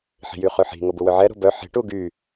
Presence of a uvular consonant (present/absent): present